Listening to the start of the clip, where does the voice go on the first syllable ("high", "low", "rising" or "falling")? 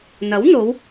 rising